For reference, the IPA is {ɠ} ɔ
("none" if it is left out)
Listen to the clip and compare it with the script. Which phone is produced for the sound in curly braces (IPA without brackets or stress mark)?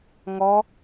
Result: ŋ